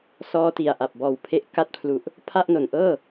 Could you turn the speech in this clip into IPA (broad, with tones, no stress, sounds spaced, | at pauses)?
s ɔː˧ t i˨˩ a̯ ʔ a˨˩ p̚ b ɔː˨˩ w pʰ e˦˥ ʔ k a˦˥ t̚ pʰ l u˨˩ ʔ | pʰ a˥˩ ʔ n o˨˩ n ʔ ɤː˥˩